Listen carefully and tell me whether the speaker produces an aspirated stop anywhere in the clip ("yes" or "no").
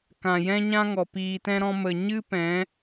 no